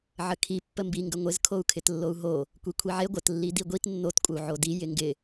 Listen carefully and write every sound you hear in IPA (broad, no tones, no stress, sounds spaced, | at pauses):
ʕ ə kʰ i pː ə m b i ŋ ɡ ə ŋʷ ɪ z kʰ o u̯ kʰ ɪ t lː o u̯ ɦ o | kʷ i kʷʰ i ʕ e ɡʷ ə t lː i d i ɡʷ i t nː o t kʷʼ ə u̯ ʕ o d i j ɪ ŋ ɡ ɪ